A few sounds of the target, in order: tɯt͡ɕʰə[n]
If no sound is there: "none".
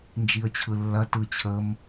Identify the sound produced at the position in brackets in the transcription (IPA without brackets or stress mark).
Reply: m